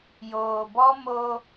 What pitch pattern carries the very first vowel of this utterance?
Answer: low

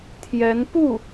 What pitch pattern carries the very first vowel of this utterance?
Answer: rising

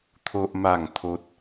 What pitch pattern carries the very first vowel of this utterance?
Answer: high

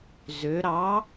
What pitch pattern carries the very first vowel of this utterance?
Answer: rising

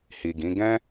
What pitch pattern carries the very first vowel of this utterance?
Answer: low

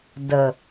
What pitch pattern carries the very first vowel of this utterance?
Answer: low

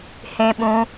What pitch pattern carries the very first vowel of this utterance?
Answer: high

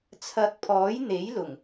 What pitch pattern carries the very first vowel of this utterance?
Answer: rising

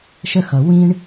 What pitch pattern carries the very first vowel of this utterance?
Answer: high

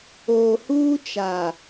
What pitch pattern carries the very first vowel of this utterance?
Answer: low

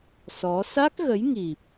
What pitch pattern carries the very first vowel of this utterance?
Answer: rising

